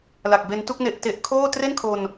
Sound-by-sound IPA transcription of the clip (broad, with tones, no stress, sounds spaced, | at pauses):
l a˨˩ k̚ b e˧ n t u˥˩ k̚ n e˨˩ ʔ t e˨˩ ʔ kʰ oː˥˩ t r e˥˩ n kʰ o˧ n